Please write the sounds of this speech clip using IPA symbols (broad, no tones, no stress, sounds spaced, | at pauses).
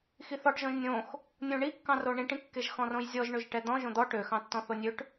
x i θ ɔ ʈ ʒ ɔ̃ ʒ nʲ õ x | nʲ õ ɳ i kː ɑ̃ r o ɳ ĩ ʈ ĩ kː e ʒ x ɔ̃ r õ j zʲ ɔ ʒ ɳ ø ʒ ʈ ɛ d̪ ɔ̃ ʒ õ d̪ ɔ ʈ ø x ɑ̃ tː ɔ̃ θ o nʲ ø ʈ